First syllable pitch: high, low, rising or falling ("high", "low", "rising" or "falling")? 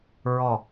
low